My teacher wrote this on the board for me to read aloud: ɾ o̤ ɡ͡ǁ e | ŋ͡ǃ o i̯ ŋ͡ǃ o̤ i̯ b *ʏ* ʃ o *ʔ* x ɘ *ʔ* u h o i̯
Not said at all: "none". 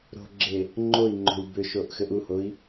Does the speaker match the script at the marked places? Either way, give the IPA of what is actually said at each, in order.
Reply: ʏ, ʔ, ʔ

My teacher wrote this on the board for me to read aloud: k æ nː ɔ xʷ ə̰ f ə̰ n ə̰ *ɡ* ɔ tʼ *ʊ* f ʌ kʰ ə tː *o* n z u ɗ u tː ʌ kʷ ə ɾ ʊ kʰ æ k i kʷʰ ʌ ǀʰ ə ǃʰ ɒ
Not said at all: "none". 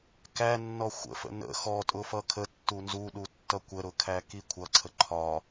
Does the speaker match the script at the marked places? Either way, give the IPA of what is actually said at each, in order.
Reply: x, ʊ, u

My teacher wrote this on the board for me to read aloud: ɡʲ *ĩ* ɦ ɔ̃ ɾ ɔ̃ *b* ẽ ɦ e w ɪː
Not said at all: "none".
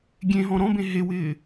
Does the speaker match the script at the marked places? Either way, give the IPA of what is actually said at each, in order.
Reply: ẽ, b

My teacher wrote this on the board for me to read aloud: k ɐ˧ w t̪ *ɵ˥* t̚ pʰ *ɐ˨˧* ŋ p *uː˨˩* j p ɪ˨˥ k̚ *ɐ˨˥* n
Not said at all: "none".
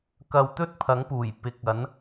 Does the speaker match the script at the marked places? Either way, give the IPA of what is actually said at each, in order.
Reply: ɵ˥, ɐ˨˥, uː˨˩, ɐ˨˥

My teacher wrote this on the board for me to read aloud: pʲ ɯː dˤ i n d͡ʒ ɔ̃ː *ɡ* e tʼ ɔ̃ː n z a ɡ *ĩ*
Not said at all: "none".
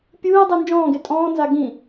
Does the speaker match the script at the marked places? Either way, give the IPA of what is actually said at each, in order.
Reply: ɡ, ĩ

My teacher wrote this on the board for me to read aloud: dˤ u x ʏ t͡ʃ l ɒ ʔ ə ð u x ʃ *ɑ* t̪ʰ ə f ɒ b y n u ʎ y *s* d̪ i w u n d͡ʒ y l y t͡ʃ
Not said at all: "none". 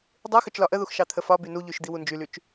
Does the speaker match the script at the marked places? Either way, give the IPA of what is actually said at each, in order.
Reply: ɑ, ʃ

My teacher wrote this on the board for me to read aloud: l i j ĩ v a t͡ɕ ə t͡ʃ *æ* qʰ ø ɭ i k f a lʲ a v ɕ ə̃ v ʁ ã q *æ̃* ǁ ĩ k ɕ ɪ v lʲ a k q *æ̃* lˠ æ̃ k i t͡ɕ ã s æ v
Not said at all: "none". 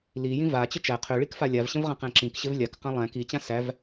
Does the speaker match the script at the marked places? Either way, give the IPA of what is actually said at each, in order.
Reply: æ, æ̃, æ̃

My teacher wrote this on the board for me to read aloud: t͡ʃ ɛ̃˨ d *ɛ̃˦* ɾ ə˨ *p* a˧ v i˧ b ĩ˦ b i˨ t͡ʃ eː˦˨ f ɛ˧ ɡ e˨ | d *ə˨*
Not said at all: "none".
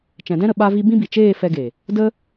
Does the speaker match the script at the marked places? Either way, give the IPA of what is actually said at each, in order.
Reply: ɛ̃˦, ɓ, ə˦

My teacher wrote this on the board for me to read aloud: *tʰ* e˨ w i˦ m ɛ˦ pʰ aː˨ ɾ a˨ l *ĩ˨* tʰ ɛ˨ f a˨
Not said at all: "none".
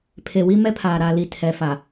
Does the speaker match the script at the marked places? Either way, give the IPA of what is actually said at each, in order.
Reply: pʰ, i˨

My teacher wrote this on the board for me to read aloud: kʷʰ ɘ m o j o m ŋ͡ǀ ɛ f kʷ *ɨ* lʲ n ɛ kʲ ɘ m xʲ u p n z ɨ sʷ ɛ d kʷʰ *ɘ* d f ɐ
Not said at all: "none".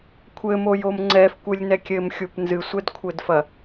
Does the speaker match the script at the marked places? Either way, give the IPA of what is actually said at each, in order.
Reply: ɨ, ɘ

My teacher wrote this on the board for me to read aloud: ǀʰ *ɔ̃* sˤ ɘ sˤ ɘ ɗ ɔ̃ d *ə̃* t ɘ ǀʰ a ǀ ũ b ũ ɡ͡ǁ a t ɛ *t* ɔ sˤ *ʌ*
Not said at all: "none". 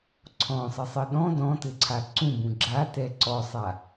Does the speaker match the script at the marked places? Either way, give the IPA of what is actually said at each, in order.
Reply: ɔ̃, ɔ̃, ǀ, a

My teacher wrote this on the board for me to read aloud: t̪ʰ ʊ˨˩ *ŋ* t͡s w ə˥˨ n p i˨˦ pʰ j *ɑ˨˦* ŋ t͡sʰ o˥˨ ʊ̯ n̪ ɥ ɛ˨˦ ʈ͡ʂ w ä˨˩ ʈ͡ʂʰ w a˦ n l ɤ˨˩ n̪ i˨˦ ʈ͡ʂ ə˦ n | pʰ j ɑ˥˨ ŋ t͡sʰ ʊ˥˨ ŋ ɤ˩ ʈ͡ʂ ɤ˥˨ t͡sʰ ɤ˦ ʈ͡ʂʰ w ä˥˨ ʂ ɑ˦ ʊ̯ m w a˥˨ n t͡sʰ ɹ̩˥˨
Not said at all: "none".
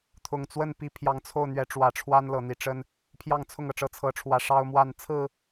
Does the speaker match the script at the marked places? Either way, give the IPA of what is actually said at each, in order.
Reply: ŋ, ɑ˨˦

